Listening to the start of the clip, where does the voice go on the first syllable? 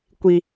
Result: low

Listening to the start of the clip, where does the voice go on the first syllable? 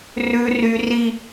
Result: high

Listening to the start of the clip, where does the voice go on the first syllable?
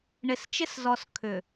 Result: low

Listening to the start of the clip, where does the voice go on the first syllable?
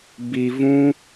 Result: low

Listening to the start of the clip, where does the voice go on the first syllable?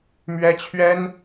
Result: high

